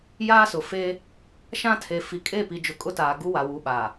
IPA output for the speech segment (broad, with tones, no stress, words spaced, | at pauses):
jaː˦sʊ˨feː˦ | ʃã˦tʰe˨ fi˨kʼe˦˨pi˨d͡ʒʊ˨ kʼʊ˦taː˨ ɡu˦wa˨ wu˨˦ɓaː˨